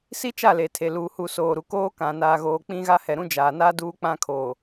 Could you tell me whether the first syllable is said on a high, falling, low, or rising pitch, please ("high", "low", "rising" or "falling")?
high